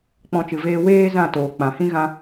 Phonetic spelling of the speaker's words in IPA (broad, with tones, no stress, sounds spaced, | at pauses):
k͡p ɔ̃˦ t͡ʃ ɨ˧ v eː˦ w eː˦ z ã˦˨ t oː˨ k͡p ã˨ h ĩ˦ ɣ ã˦